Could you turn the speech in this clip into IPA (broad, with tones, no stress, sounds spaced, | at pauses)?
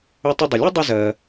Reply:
ʏ˧ tˤ ʏ˧ dˤ ə˩ lʲ ɯ˥ dˤ ʏ˧ z ɜ˩